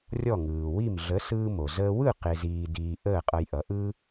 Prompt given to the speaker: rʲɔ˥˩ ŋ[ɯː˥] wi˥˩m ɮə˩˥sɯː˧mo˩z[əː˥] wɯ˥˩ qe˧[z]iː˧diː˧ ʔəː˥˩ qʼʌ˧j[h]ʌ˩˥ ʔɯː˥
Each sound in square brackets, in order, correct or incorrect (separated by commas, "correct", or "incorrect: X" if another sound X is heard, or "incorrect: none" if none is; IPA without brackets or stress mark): incorrect: ɯː˩, incorrect: əː˧, correct, incorrect: ʔ